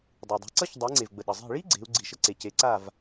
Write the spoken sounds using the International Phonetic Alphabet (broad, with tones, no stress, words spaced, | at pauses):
dˤu˩dˤi̤˩˥ ǀʌ˥çdˤe˩˥ ŋ͡ǀe˩vɡ͡bə˩ ɗʌ˩zˤi̤˥˩ ɭi˥ ɡ͡ǀe̤˩˥u̯ɡ͡ǀi˩ʃə˥ ǀe˩ce˩˥ǀa˥˩v